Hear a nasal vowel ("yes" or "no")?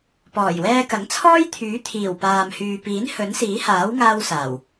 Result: no